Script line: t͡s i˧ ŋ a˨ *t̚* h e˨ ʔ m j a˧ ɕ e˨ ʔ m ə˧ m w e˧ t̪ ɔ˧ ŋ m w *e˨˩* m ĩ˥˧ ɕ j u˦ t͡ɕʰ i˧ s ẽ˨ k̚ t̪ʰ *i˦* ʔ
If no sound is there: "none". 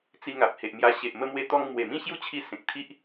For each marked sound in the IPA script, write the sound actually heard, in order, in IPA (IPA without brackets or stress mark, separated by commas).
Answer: p̚, e˨˩, i˦